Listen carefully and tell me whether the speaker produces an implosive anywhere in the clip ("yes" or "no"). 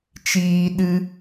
yes